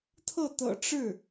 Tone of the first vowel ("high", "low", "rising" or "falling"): falling